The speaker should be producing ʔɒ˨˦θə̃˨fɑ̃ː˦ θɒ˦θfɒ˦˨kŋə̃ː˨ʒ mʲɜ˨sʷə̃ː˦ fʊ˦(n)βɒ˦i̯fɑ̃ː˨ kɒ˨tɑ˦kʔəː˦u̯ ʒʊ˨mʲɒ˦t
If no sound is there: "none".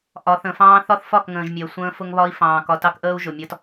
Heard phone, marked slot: ŋ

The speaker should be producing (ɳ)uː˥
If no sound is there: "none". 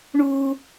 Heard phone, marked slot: ɳ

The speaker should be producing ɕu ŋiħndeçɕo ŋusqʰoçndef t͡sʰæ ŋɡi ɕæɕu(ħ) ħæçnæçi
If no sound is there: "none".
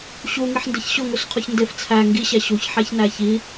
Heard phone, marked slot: ç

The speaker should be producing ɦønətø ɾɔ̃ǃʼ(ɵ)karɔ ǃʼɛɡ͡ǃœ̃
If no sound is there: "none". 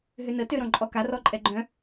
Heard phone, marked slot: ɔ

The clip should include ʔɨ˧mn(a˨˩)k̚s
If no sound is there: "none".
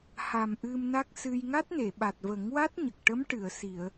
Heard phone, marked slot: a˦˥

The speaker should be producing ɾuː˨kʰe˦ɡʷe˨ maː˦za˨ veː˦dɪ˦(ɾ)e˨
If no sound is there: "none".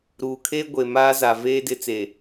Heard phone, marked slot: t͡s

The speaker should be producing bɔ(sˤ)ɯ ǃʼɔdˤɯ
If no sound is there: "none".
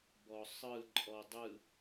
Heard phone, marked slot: sˤ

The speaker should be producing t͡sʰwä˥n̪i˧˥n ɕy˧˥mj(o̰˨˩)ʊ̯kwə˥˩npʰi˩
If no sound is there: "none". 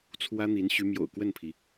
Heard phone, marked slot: o̰˨˩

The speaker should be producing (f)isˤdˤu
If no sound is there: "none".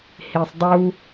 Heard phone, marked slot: h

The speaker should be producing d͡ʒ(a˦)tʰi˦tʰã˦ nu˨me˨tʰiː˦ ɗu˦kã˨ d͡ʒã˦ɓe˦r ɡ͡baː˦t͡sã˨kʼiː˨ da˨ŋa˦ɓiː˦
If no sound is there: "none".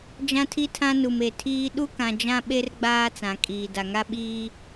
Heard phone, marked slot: ã˦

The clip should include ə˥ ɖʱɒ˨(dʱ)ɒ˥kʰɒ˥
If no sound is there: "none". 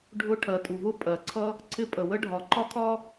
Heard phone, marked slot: ǃ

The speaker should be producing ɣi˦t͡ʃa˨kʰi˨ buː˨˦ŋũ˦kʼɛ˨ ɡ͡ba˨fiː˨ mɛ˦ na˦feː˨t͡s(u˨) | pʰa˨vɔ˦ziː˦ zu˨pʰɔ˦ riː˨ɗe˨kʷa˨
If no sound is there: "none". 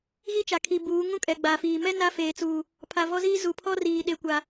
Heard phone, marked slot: uː˨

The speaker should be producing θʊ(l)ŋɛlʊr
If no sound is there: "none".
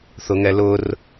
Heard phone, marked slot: none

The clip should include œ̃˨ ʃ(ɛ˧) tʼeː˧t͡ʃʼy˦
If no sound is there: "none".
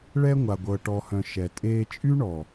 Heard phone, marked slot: ɛ˨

